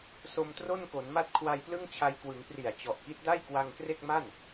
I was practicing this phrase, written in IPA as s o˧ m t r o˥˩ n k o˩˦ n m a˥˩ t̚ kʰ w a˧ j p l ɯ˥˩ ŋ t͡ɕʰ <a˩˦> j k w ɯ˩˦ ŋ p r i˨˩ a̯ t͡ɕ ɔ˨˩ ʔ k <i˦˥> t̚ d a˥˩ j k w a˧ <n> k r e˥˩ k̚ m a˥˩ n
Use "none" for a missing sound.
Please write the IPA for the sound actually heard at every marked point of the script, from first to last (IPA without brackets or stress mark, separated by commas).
a˧, i˦˥, ŋ